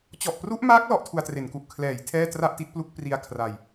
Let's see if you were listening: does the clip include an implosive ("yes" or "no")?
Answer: no